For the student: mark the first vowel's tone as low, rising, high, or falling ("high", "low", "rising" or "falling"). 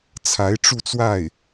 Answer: rising